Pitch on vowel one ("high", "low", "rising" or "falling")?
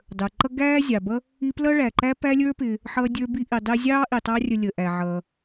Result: low